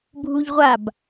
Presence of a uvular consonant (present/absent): present